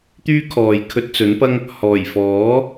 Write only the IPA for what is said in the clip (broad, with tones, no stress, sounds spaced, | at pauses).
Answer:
t̪ yː˥ kʰ ɔː˨ j kʰ ɵ˧ t̚ t͡s ɵ˨˥ n p ɐ˥ ŋ | h ɔː˨˩ j f ɔː˨˥